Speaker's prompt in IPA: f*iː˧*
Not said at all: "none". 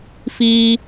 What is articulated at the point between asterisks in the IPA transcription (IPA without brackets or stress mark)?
iː˥